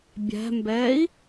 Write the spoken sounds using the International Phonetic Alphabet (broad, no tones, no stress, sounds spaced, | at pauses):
bʲ æ̤ m b ɛː i̯